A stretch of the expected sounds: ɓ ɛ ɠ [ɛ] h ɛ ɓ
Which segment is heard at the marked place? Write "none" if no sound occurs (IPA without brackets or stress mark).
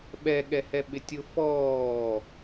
ɛ